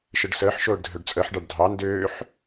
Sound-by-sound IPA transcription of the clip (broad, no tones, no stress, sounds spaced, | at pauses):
ʃ ɘ ɖ s əː ħ ʃ oː ɖ dʱ ø ɖ t͡sʼ əː ħ ɖ ɑ ɖ dʱ ɑ n d øː ħ